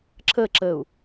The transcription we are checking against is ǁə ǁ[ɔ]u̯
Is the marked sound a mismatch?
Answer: yes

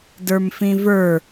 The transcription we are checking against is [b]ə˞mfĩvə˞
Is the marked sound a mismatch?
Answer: yes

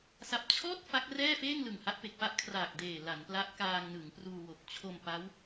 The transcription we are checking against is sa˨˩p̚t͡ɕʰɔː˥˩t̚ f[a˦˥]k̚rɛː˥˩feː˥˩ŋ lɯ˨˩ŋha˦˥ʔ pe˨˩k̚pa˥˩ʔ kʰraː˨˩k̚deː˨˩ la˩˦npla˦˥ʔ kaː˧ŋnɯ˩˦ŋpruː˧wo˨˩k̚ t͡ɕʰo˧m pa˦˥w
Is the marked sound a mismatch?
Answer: no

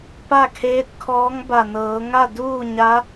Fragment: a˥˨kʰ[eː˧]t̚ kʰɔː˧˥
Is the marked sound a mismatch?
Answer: yes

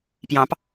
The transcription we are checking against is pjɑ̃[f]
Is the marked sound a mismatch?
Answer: yes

